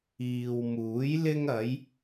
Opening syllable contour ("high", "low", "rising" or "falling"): low